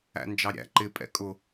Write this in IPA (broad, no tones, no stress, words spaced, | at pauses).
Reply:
æ̰nd͡ʒɑɾʲæ̰ ǃɪ pʼɛ̰kʼʊ